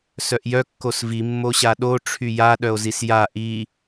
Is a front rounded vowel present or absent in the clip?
present